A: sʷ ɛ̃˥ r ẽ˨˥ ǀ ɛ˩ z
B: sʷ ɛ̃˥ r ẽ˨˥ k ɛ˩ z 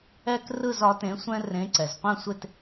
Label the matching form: A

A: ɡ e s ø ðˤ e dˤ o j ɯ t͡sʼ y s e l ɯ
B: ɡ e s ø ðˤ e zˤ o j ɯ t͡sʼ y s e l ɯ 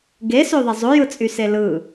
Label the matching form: B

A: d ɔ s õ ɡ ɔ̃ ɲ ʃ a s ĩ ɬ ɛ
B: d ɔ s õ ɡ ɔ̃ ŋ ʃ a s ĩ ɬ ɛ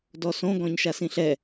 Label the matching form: A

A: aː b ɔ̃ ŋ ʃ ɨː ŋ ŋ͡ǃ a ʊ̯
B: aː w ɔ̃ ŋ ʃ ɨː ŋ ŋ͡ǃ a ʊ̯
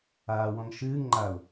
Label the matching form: B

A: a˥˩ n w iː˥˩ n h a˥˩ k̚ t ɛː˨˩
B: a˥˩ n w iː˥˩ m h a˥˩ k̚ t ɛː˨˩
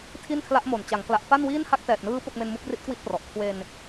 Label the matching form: A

